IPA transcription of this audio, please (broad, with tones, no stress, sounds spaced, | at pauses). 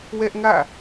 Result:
w ɛ˦ ʔ ŋ ä̰˦˨